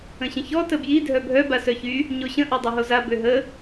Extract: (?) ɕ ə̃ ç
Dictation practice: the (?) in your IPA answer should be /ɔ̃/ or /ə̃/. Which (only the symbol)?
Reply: ə̃